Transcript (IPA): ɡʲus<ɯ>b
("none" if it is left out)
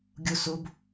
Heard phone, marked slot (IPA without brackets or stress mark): u